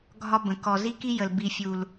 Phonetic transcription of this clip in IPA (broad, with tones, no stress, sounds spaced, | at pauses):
ɡʱ ɒ˦ b ə̃˨ k ɔ˨ z i˦ k i˦ j ə˨ l b i˨ fʲ u˨ l